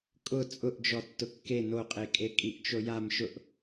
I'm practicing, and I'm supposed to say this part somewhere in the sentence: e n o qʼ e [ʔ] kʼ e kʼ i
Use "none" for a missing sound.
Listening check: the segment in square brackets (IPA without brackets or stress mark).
none